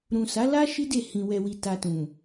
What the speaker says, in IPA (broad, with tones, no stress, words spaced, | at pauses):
ɾũ˨sa˨˦la˦ ʃi˦ de˦˨ hĩ˨ wɛ˨wi˨ta˨ tũ˨